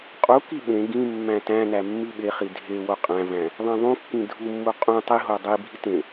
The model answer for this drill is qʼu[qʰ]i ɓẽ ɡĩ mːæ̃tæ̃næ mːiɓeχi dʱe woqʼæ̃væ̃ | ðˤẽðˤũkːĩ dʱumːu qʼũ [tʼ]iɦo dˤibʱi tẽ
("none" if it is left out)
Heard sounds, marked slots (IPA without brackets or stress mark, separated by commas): k, tˤ